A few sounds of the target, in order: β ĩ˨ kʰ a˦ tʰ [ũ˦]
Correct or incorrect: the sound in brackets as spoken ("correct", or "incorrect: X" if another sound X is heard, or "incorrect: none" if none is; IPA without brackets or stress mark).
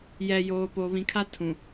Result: incorrect: ũ˨